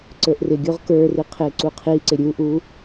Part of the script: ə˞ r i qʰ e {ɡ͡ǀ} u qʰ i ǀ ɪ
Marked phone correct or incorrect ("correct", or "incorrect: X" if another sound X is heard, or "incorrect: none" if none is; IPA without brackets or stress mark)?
incorrect: ǀ